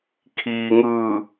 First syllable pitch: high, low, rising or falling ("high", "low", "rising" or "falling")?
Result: low